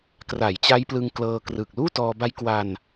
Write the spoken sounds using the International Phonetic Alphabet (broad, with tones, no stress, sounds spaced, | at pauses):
k r a˩˦ j t͡ɕ a˦˥ j p l ɯ˧ ŋ k l ɤː˧ k r ɯ˨˩ k̚ l uː˥˩ t ɔː˧ b a˦˥ j k w a˧ n